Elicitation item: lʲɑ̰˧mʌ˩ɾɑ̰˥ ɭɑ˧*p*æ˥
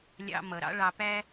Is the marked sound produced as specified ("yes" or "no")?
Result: yes